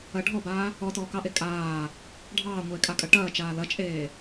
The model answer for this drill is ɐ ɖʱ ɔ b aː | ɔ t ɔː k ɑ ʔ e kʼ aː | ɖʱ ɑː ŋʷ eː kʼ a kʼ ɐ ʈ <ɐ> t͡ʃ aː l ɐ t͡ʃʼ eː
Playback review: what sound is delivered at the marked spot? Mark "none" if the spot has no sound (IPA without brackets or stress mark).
ɐː